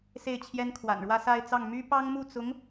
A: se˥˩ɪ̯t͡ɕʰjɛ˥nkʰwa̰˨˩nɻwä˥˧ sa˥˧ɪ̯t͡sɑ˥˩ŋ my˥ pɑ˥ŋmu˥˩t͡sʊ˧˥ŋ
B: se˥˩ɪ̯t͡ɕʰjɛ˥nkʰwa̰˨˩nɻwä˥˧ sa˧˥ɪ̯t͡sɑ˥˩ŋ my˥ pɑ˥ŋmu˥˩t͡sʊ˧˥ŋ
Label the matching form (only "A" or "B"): A